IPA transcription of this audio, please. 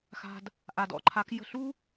xa̤˨d | ʔa˨dɔ̰˨ǃʰa˨˦k jə̤˦˨ ɬu˦

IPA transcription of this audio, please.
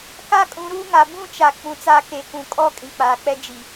ka˦ kʼũ˨˦ɾuː˦ŋa˨ bũ˦t͡ʃa˨ k͡pũ˨t͡sa˦˨ke˨˦kũ˨ kʼɔ˦ kʼĩ˨k͡paː˨k͡pɛ˦ d͡ʒi˨

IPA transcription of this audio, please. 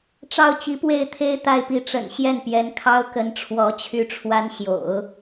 ʈ͡ʂɑ˥˩ʊ̯t͡ɕi˧˥pwe˥˩ɪ̯t̪ʰe˥ɪ̯ t̪a˥˩ɪ̯pi˧˥ʈ͡ʂə̰˨˩n ɕjɛ˥˩npjɛ˧˥nkʰɑ˥ʊ̯kə˧˥n ʈ͡ʂʰwɔ˧˥ t͡ɕʰy˥˩ʈ͡ʂʰwa˥n ɕjo̰˨˩˦ʊ̯

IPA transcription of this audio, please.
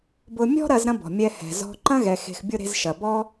bʊ˧mʲɔ̤˥ɾɐ˧z ɾɐ̃˥bɔ̤˩mʲɛ˧ hɛ̤˩zɔ̤˧ ǃɐ̃˥ɣɛ˩xe̤˩xbʲʊ˧ ɾe̤˧zʃɐ˩bɔ˥

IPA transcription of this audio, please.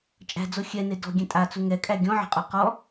t͡ʃʼæ̤d͡zo xʲɛne dɔ̤ɡʲɛ̃ tʼat͡su ŋɛkʼæ ɡʲɔ̃ʕɛ̤qʼu qɔ

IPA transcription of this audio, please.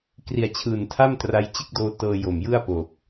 kri˨˩a̯t͡ɕʰɯː˨˩ntʰa˥˩m tra˦˥jt͡ɕɯ˥˩k̚doː˦˥ tɤː˧jo˨˩mjɯ˥˩a̯po˨˩k̚

